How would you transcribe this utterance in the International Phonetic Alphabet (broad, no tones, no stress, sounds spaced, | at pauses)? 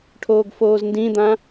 ʈʰ oː ɡ f oː z n d ĩ d̪ ã